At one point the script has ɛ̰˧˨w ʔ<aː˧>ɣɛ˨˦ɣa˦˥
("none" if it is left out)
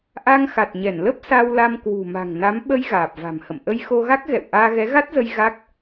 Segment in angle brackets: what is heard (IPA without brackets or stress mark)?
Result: aː˧